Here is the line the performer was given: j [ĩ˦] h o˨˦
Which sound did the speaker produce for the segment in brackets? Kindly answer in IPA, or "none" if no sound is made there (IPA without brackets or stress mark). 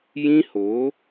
ĩ˦